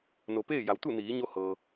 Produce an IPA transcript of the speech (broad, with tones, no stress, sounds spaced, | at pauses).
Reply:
n o˩ p eː˥˨ j a˩˧ w t̪ u˥˨ n iː˩˧ ɲ o˧ h ɤː˩